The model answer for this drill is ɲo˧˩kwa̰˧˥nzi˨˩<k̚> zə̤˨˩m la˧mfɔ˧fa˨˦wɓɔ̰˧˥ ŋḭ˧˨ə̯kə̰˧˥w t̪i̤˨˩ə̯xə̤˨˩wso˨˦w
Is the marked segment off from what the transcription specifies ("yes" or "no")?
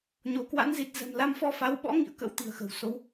yes